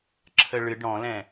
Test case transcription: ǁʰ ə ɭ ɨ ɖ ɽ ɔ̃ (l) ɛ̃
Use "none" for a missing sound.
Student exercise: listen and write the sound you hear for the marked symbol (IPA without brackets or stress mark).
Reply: l